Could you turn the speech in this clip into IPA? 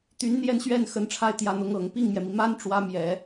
t̪y˧˥nn̪jɛ˥˧nɕɥɛ˥˩n xə˧˥nʈ͡ʂʰa˥˩ɪ̯ t̪jä˧˥n̪ʊ˧˥ŋɤ˨˩ŋ pi˥˩ŋmjɛ˩mi˩ ma˥n ʈ͡ʂwä˧˥mjɛ˨˩˦

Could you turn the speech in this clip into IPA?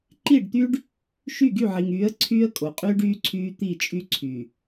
ǃi˦˨ɖt̪y˦ɖ | ʃy˦˨ɡy˦˨ʕi˨ŋyː˨˦ə̯ ǀʰyː˦ə̯kʼo˨qʼyː˦ɖyː˦ ǀʰyː˦ t̪i˦˨t͡ʃʼy˦ ǀʰy˨

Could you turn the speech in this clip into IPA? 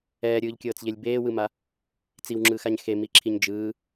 ɛːɾʲɯːʎkʲɤːt͡sʎelʲ beːwɯma | t͡siwŋ͡ǁɯːxaɲ xemiǁʰiɲ d͡ʒɯː

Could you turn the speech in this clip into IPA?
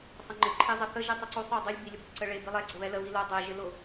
sˤəŋ͡ǃɪ ǃʰezˤəθə ʒitˤəǀosˤ ou̯dˤilʲ bilʲəbʊ ǀəɭe bilˠɛ ɡ͡ǀəβɛlə βilo dˤe ʒɪlʊ

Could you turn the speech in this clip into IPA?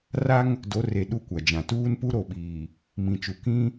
ra˦ŋ | do˨˦re˨ ɗu˦kʷa˨d͡ʒã˨ tuː˦npu˦ɾo˨ɓiː˨ | mĩ˨t͡ʃu˨ kĩ˦

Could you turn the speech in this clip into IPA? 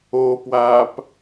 oːpwaːp

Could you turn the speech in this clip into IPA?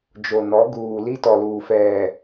d͡ʒo˨nɔ˨˦ ɡuː˨li˦tɔ˨luː˨ fɛ˨

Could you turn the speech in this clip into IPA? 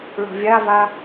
ɭo̤vʲava

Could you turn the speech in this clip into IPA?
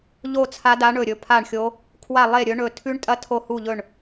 ʎo˥˧t͡sʰa˦˥da˦˥ ɳɵ˥˧ɾʲɵ˦˥ pʰa˥˧ɳxʲo˦˥ | kʰwa˥˧ lˠe˥˧ɾʲɵ˦˥ ɳɵ˥˧ tʰʉ˦˥ɳtʼɐ˦˥ tʰo˥˧ hu˥˧ʎɵ˥˧ɳ

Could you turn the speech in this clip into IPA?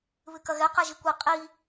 βɨkɐɣɛ qɛʒikʷi qʼi

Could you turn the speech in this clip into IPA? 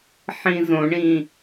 ħĩzõɳĩ

